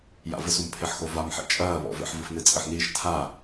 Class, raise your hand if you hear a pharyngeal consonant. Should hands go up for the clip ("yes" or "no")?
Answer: yes